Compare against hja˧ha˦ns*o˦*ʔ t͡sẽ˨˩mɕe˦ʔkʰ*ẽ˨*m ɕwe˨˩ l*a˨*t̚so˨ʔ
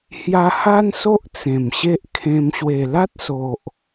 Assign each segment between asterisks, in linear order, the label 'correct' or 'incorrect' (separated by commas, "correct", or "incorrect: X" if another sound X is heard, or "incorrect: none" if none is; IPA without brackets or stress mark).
correct, incorrect: ẽ˧, incorrect: a˦